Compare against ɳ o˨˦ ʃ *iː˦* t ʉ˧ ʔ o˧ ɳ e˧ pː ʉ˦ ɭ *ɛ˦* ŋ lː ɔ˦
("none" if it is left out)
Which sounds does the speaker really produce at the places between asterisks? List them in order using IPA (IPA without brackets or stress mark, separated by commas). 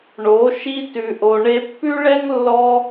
i˦, ɛ˦